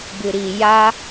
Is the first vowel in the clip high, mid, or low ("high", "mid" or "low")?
high